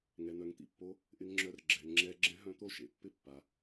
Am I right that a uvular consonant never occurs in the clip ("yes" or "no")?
yes